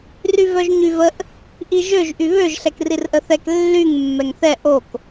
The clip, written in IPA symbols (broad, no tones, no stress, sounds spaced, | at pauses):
r y v œ ʒ ɲ y v ə ʔ | ʔ i ʒ ø ʒ ʔ y β ø ʒ ɬ ɛ k r i r ʔ ə θ ɛ k lː y ŋ mː ɛ ŋ θ ɛ ʔ o k